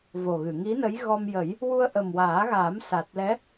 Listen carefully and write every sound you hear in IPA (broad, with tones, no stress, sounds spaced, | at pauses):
v o˨˩ ɣ ɨ˨˩˨ ŋ i˧˥ n ə˧˥ j ɣ ɔ˧ m j ə˨˩˦ j | w u˧ ə̯ ʔ ə˨˩ m w aː˨˩˦ ɣ aː˨˩˦ m s a˨˩ t̚ l ɛ˧˥